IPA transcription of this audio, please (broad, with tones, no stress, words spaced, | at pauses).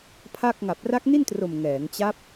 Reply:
pʰa˥˩k̚ ŋa˨˩p̚ra˦˥k̚ni˥˩ntro˨˩m ŋɛː˩˦ŋt͡ɕa˦˥p̚